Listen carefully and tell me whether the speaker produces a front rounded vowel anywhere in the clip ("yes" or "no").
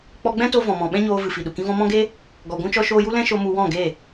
no